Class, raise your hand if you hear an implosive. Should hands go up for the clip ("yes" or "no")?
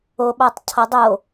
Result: yes